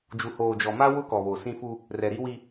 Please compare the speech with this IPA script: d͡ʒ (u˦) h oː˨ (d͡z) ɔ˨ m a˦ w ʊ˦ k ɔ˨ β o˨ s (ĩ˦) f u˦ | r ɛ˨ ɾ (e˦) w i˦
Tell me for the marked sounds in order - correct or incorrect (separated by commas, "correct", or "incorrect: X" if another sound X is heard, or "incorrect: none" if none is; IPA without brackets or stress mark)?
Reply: incorrect: u˨, incorrect: d͡ʒ, correct, incorrect: i˦